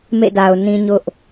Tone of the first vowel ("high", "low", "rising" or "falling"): falling